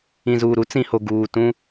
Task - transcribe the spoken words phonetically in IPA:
ĩ˨ z uː˨ ɾ u˦ t͡s ĩ˨ h o˨ ɡ uː˨ t ũ˦

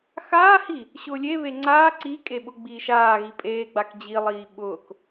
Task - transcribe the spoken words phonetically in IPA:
x aː h i | ɕ ʊː lʲ e β e ŋ͡ǀ aː ǀ i kʼ e ɓ ʊ ɡ͡b iː ʃ aː ɣ i pʼ eː ɡ͡b a k d͡ʑ i lˠ iː ɓ ʊː k

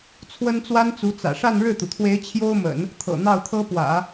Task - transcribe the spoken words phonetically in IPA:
t͡sʰ w ə˥ n t͡s w a˥ n t͡s u˧˥ t͡s ä̰˨˩ ʂ a˥˧ n ɻ ɻ̩˥˩ t̪ u˩ t̪ʰ w e˧˥ ɪ̯ t͡ɕʰ j o˥ ʊ̯ m ə̰˨˩˦ n | t̪ʰ ɤ̰˨˩ n̪ ɑ˥˩ ʊ̯ t̪ʰ ɤ˥ p w ä̰˨˩˦

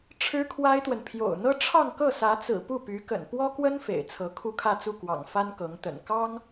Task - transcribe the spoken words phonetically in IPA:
ʈ͡ʂʰ ɻ̩˥ kʰ w a˥ ɪ̯ t̪ w ə˨ n pʰ j o̰˨˩ ʊ̯ n̪ ɤ˥ ʈ͡ʂʰ ɑ˥˧ ŋ k ɤ˥˩ s ä˧˥ t͡s ɹ̩˨˩ p u˥˩ p y˧˥ k ə̰˨˩ n p w ɔ˥ k w ə˥ n f ḛ˨˩ ɪ̯ t͡sʰ ɤ˧˥ kʰ u˥˧ kʰ ä˥˧ t͡s u˥˩ k w ɑ̰˨˩ ŋ f a˥ n k ɤ˧˥ ŋ t̪ ə̰˨˩ n k ɑ˥ ŋ

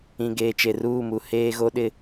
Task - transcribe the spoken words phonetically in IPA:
ĩ˨ ɡ eː˨ t͡ʃ e˨ r uː˦˨ m u˨ h eː˦ ɣ o˦ ɗ ɪ˦

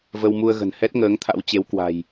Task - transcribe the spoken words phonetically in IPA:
v ə˧ w m u˧ ə̯ ɣ ə̤˨˩ n h ɛ˦˥ t̚ ŋ əː˨˦ ŋ t̪ʰ a̰˧˥ w t͡ɕ e˨˦ w k w a̤˨˩ j

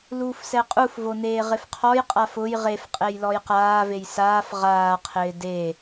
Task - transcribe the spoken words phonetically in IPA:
l uː f s ɛ qʼ u f v o n eː ʁ ɪ f qʰ ɔ j qʼ a f ʊ j ʁ e f qʼ e j l ɔ j q aː v e j s aː f ʁ aː qʰ ɪː d e

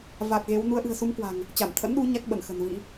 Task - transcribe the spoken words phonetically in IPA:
v a˨˩ t̚ ɣ e˨˦ w n u˨˦ ə̯ ʔ ɨ̤˨˩ ə̯ s u˨˦ m k w a̤˨˩ ŋ | t͡ɕ a˧˩ m t̪ʰ ə̰˧˥ n ɗ u˨˦ ɲ a˦˥ k̚ ɓ ə˧˩ n x ə̤˨˩ n v ḭ˧˥

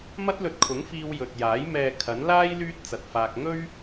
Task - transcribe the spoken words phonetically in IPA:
m ɐ˥ t̚ l ɵ˧ t̚ kʰ ʊ˨˥ ŋ f iː˧ w j ɵ˨ t̚ j aː˨˥ j m ɛː˨ kʰ ɐ˨˥ n l aː˥ j l yː˥ t̚ t͡s ɐ˨ t̚ f aː˧ k̚ ŋ ɵ˥ ɥ

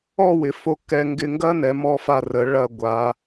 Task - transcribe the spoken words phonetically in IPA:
ɔ˥˧ w ɪ˩˧ f o˧˩ k ɛ˧ ŋ ɡ ɪ˧ ŋ ɡ ɐ˥ n ɛ˩˧ m ɔ˧ f a˧˩ r ə˩˧ ɭ ɐ˧˩ ɡʷ a˩˧

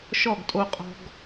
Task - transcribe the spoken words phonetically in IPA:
ʃ ɔ˦˨ ɡ tʼ o˧ qʼ ɔ̤˧ ɡ

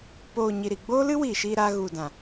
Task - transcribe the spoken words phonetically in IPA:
p oː˧ ɲ i˧ ɾ i˧ ɡ͡b oː˦ l ɨ˦ w iː˨ ʃ iː˧ ɾ aː˧ ɣ u˨ d ã˨

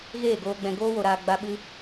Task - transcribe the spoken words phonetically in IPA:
ɣ eː˦˨ ɡ oː˧ ɡ͡b ɛ̃˧ ɡ oː˦ w o˧ ɾ aː˧ ɡ͡b a˦ ɓ ɨ˦

